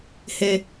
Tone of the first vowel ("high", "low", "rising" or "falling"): high